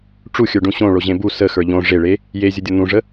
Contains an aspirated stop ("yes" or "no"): no